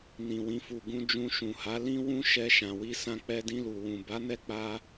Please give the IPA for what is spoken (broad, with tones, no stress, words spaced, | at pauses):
nĩ˨wĩ˨fu˨ ɡũ˧d͡ʒũ˧ʃũ˨ha˨˦ lĩ˦wũ˦ʃɛ˧ ʃã˨wi˧sã˧ k͡pɛ˧dĩ˧lu˨ wũ˨ ba˨˦nɛ˧k͡pa˧